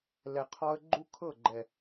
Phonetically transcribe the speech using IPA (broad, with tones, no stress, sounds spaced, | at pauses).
l ɛ˨ qʰ ɔ˦ ə̯ ɡ͡ǃ u˦ kʰ ɤ˦˨ ɡ͡ǃ ɛ˨